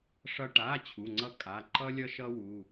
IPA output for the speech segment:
ʂʌ˧ ʈa˩˧˩ t͡ɕʰu˩˧˩ŋ͡ǀʌ˥ kʼa˩˧˩ ǃʌ˥ lʲʌ˥ʃʌ˥ wu˩˧˩

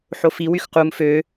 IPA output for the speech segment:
ħofi wyxqum fø

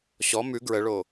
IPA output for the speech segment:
ɕɔ mʉ ɡɹəɭo

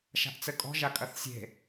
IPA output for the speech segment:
ʃa̤ʔt͡sɘkʼɔ̤ ʒakʼɐθsʲe̤

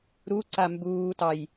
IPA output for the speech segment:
ɾuǀa mbuːtɑj

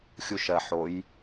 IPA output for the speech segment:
xʲuʃɜ ħoj

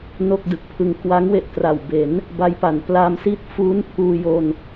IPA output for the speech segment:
no˥˩k̚dɯ˨˩k̚pʰɯ˧ŋ kwa˦˥ŋ we˥˩ʔtra˨˩w be˩˦n | ba˦˥jpa˩˦nplaː˧m siː˥˩t̚ fuː˦˥n pʰuː˧jo˧n

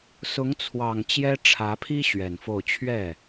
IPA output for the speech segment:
sʊ˧˥ŋt͡sʰwɑ˨˩ŋ t͡ɕjɛ˥ʈ͡ʂʰä˧˥pʰi˥ ɕɥɛ˨˩nfo˥˧ʊ̯ t͡ɕʰɥɛ˥˩

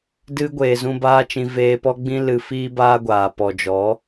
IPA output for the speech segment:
dɨ˦ ɡʷeː˨zũ˧baː˦t͡ʃĩ˧ veː˧pɔ˦ɡ͡bĩ˦ lɨ˧fiː˦baː˦ɡʷaː˨ pɔ˨d͡ʒɔ˨˦

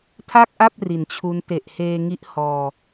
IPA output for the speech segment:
tʰa˥˩k̚ʔa˥˩p̚ ri˨˩nt͡ɕʰu˦˥n te˨˩ʔheː˧ ŋi˦˥ʔ hɔː˧

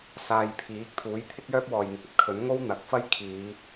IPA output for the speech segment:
saː˧jpʰiː˨˥k̚ t̪ʰuː˨˥jt̪ʰɪ˥k̚jœː˥p̚wɔː˨j ŋɪ˨k̚ɐ˨t̚kʰɵ˨˥n ŋo˥wn̪ɐ˨k̚fɐ˥j kʰiː˨˧

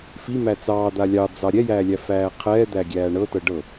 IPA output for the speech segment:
fimæ t͡sɑːd̪a lʲɑd͡zɑ ɾʲɛjæːlʲæfæː qʰɛːd̪æɡʲæː ɳɤtɤ ɖɤ

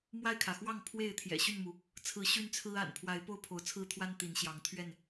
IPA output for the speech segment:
mwa˥˨ɪ̯kʰä˩ xwɑ˥˨ŋpʰwe˥˨ɪ̯ t̪ʰjɛ̰˨˩ɕy˥˨nmu˩ | t͡sʰɹ̩˨˦ ɕy˦nt͡sʰɹ̩˦ a̰˨˩n pʰwa˨˦ɪ̯po˦ʊ̯ pʰo˨˦ʊ̯t͡sʰɹ̩˦t̪ʰwa˦n t̪i˨˦nɕjɑ˨˦ŋt̪ʰɥɛ˥˨n

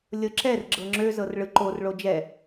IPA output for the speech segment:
lʲɤǁɛr ɡ͡ǁɤŋ͡ǁø zɤrɭɯ ǃor ɭod͡ʒɛ

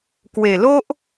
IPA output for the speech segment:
kwe˨˩lo˦ʔ

